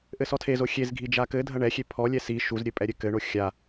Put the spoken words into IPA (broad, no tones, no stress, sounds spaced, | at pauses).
ʔ ɘ s ɔ tʰ e z o xʲ e z ɡʱ i d͡ʒ a k ɘ dʱ ɐ ɳ ɛ xʲ e pʰ ɔ lʲ ɛ s i ʃ u z ɾʲ ɘ pʼ ɛ ɾʲ ɘ k ɘ ɳ o xʲ a